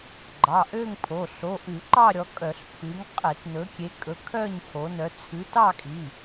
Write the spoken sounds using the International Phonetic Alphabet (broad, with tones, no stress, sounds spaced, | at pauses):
ɡ͡ǃ ɑ˩˧˩ ʔ ø˥˧ ŋ pʰ o˩˧˩ ɬ o˩˧˩ ʔ ʉ˧˩˧ ǃ ɑ˥˧ ɾʲ ɔ˨˦ kʼ œ˧˩˧ ɬ pʰ ʉ˨˦ ŋ qʼ e˧˩˧ t n ɵ˨˦ kʲ e˨˦ kʼ ɵ˨˦ kʰ œ˥˧ ɲ pʰ o˨˦ n œ˨˦ t͡sʰ ʉ˨˦ t ɑ˥˧ kʼ i˩˧˩